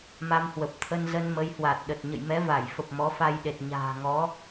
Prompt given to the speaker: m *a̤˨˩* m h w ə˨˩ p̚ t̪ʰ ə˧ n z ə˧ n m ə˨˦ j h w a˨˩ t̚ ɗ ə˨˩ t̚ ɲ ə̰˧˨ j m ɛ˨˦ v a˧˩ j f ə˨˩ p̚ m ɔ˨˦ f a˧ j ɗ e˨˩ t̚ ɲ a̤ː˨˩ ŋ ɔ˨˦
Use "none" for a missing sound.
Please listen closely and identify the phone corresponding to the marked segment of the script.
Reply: a˧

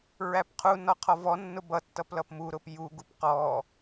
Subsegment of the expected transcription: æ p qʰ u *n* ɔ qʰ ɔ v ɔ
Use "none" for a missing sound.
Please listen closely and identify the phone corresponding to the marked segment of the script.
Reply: n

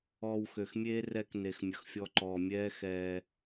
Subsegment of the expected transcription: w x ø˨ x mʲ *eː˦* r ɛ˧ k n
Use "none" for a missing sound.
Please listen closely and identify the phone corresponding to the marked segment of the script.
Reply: eː˦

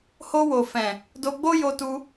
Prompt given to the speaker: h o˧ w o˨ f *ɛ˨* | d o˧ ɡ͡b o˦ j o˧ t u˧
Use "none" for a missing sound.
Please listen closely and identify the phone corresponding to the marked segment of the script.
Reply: ɛ̃˨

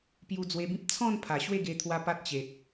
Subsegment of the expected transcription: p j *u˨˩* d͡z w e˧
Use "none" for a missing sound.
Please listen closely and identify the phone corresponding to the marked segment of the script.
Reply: u˧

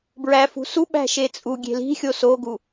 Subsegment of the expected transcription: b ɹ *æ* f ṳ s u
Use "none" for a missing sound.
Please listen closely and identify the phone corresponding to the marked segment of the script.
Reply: æ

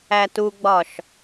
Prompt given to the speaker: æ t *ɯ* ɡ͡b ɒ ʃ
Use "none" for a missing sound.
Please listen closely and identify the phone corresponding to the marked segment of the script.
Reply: u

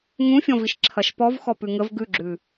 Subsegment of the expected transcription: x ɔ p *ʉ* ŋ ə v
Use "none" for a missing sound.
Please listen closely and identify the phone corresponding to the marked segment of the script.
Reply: ʉ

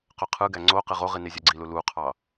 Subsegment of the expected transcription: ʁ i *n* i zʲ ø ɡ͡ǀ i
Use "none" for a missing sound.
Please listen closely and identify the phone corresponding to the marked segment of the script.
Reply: n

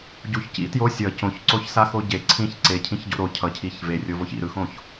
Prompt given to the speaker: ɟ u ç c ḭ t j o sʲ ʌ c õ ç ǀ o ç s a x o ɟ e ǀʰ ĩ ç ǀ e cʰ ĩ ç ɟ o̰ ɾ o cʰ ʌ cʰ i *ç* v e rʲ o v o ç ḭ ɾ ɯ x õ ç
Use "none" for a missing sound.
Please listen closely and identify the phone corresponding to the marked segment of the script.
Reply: ç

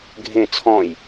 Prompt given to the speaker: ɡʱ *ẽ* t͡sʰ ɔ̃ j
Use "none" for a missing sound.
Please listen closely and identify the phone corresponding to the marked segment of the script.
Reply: ẽ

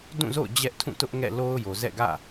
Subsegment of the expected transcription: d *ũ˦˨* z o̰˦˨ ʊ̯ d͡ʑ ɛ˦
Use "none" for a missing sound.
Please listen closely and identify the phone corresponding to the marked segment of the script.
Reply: ũ˦˨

